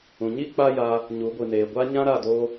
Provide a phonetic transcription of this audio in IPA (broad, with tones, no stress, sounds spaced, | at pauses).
ũ˨ ɲ i˦ k͡p a˦ j a˧ | ɲ u˨˦ ɡʷ ɨ˨ n eː˨ ɡʷ a˦ ɲ ã˦ ɾ a˦˨ d oː˧